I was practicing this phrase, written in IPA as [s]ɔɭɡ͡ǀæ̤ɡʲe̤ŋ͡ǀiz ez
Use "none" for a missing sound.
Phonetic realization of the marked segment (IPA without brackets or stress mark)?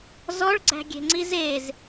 z